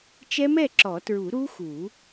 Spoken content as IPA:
t͡ʃ ɛ˦˥ m ɛ˥˨ ǁ ɔ˨˩˦ t ɹ u˨˩˦ ɾ u˦˥ x u˨˩˦

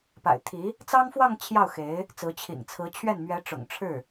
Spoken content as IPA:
p a̰˨˩ ɪ̯ t̪ʰ i˧˥ | t͡s ɑ˥ ŋ f w ɑ˥˧ ŋ t͡ɕʰ j ɑ˥˩ ʊ̯ x e˧˥ ɪ̯ | t͡s ɹ̩˧˥ t͡ɕʰ ḭ˨˩ ŋ t͡sʰ ɹ̩˧˥ t͡ɕʰ ɥ ɛ˥˩ n m ɥ ɛ˧˥ ʈ͡ʂ ʊ̰˨˩ ŋ ʈ͡ʂʰ ɻ̩˥˩

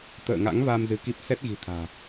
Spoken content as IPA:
t̪ ə̰ː˧˨ ŋ a̰˧˥ ŋ v a˧ m z ɨ˨˦ k i˦˥ p̚ s ɛ˦˥ t̚ ɣ i̤˨˩ t̪ʰ a̤ː˨˩

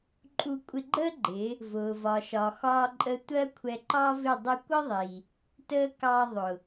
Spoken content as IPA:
ǃʼ u˧ kʷʼ ɪ˧ ɡ͡ǃ əː˦ ɡ͡ǃ ɪ˨˦ | v ʊː˨ v ɒ˨ ʃ ɒ˨ x ɒː˧ ǃʼ ə˧ tʷ ɜ˦ kʷʰ ɛ˧ ǃ ɒː˦ v ɪ˦˨ dˤ ɪ˧ kʷ ə˦ ðˤ i˨ | t əː˦ k ɑ˧ ðˤ ʊ˨

